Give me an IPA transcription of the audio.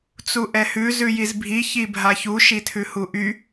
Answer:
t͡s u ʔ ɛ h ʉ z ʉ j i z bʱ i ç i bʱ a ç u ʃ i tʰ ʉ h u ʔ y

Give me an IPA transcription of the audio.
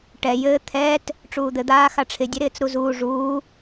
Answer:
ʈ ɛ j ɘː t̪ʰ ɛː t | ʈ͡ʂ uː d̪ ɘ d̪ aː x a ʈ͡ʂʰ ɪ dʲ ɛ ɾ ɪː t͡s ɾ u z uː ʐ uː

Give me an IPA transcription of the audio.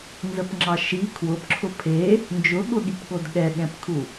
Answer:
n z ə p ŋ͡ǁ ɑ ʃ i kʰ w ʊ p ǁʰ ʊ pʰ e | n d͡ʒ ʊ ɠ ʊ ɠ i p ɠ o d ɠ ɛ ɠ ɛ̃ p kʰ u

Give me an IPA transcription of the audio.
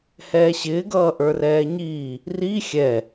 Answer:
h ɛː ɕ ɪː ɡ ʌː ʔ ə˞ r ɛː ɲ iː | r i xʲ ɛ

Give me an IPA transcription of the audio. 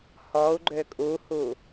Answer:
h ɔ u̯ ɡ͡ǃ ø kʼ u h u

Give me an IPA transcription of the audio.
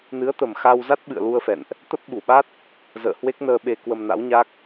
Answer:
n ɨ˨˦ ə̯ t̪ ə˨˩ m x a˧ w z a˦˥ t̚ ɓ ɨ̰˧˨ ə̯ l u˧ ə̯ f ɛ̰˧˨ n ʔ | t̪ ə˦˥ p̚ ɓ u˧˩ ɓ a˦˥ t̚ | z ə̰ː˧˨ h w e˦˥ k̚ n əː˧ ɓ e˧ k w ə˧ m n a̰˧˥ w ɲ a˦˥ k̚

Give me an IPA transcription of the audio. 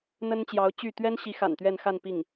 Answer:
n̪ ə˥ n t͡ɕ j ɑ˧˥ ʊ̯ t͡ɕ y˥˩ t̪ ɥ ɛ˥ n ɕ i˧˥ x a̰˨˩ n t̪ ɥ ɛ˥˧ n x a˥˧ n p i˥˩ ŋ

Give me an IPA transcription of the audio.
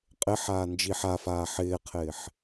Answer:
qʼ ɪ ħ aː n d͡ʒ i ħ a f aː ħ ɪː qʰ ɪː ħ

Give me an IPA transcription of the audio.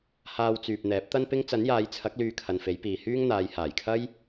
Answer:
h aː˧ w t͡s yː˨ p̚ n̪ ɛː˨˥ p̚ t̪ ɐ˥ n p ɪ˥ ŋ t͡s ɐ˨˥ n j aː˨˧ j t͡sʰ ɐ˨˥ k̚ l yː˧ kʰ ɐ˨ n f e˨˥ j p iː˨ h yː˥ ŋ n̪ aː˨˧ j h aː˨˩ j kʰ ɐ˥ j

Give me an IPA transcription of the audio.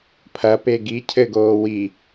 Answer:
pʰ ɐ p e ɡ i cʰ ɘ ɡ oː w i

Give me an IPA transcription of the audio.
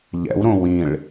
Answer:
ʎ ɛ̰ w ɾ õ w ĩ ɭ

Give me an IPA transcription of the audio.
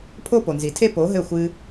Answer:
pʰ o˦ p o˨ n z i˨ tʰ e˦ p o˨˦ ɦ ɘ˦˨ xʷ ɨ˧

